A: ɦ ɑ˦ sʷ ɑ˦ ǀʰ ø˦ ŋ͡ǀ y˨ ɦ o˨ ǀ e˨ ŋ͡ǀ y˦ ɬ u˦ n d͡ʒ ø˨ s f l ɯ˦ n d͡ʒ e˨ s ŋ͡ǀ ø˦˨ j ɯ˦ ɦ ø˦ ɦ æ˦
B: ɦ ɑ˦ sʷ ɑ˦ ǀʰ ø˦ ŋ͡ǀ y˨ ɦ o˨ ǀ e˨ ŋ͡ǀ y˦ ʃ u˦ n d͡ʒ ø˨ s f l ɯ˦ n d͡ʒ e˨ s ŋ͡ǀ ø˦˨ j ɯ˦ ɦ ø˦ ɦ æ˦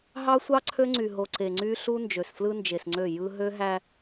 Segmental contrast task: A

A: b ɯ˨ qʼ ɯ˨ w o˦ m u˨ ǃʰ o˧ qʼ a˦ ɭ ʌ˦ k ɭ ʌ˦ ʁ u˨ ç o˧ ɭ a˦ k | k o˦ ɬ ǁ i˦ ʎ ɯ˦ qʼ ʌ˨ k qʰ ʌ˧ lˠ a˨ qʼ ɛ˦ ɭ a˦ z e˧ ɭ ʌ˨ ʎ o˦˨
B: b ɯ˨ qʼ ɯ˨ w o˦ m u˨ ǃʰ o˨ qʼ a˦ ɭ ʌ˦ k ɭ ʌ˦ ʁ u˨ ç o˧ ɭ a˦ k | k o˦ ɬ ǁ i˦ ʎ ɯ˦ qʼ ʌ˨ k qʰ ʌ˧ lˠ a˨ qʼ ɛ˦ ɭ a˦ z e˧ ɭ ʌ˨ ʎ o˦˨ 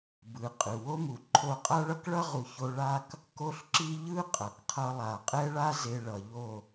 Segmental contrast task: A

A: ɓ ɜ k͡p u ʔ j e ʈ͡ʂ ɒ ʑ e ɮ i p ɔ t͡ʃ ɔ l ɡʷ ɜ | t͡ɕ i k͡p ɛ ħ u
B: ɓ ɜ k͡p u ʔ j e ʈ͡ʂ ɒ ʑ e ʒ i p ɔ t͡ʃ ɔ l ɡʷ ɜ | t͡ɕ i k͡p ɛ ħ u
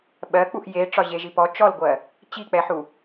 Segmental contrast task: B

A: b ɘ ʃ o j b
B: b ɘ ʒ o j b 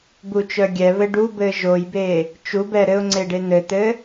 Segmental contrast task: B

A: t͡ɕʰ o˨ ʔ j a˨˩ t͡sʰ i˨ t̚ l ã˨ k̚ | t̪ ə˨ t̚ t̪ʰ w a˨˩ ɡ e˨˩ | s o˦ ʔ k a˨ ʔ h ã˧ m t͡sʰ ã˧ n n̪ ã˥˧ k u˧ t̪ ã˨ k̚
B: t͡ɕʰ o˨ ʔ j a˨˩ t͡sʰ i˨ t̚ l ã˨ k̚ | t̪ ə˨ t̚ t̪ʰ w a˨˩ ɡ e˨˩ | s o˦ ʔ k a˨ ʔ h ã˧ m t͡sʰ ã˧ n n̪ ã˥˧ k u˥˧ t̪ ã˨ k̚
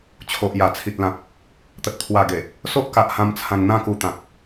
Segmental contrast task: A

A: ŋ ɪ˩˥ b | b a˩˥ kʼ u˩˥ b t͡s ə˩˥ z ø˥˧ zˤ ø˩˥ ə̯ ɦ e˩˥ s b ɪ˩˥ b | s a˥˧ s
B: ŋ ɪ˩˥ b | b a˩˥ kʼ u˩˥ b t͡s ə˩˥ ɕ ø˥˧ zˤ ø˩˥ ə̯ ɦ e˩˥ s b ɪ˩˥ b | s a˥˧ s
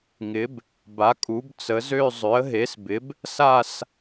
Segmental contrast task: A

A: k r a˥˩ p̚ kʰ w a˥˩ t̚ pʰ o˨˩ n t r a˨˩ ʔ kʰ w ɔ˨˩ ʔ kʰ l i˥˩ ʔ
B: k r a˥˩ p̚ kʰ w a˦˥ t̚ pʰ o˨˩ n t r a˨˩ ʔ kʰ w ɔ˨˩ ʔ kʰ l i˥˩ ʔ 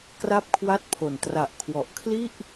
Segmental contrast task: A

